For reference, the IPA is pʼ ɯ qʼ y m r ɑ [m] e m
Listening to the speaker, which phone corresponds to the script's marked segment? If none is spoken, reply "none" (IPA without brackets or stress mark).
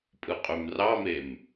m